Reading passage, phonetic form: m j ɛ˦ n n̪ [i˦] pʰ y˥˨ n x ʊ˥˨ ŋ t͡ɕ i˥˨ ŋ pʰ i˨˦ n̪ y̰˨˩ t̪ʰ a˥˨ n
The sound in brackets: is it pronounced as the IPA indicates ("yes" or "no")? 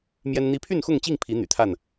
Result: yes